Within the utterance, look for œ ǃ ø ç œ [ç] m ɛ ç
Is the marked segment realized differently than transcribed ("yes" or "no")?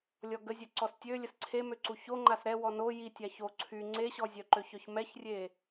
no